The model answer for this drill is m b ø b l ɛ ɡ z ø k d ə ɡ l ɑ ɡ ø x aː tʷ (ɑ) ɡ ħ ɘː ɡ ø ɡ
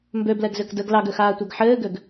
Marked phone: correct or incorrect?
correct